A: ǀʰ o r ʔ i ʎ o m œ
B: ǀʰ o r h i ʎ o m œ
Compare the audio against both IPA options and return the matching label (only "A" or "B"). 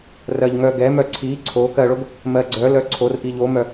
A